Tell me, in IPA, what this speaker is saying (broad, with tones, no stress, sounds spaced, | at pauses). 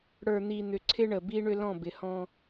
ɽ ə˞˨ n̪ i˨ n̪ ʏ˨ ǀʰ ɪ˦ ɳ ə˨ b i˦ ɳ ʏ˦ l ɔ̃˦˨ b ɪ˨ h ɔ̃˦